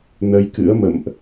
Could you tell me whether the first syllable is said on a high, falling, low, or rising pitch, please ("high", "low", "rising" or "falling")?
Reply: rising